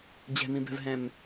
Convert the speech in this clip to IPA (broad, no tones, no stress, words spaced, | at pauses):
d͡ʑɛ̤mĩbɛ̤vɦɛ̃m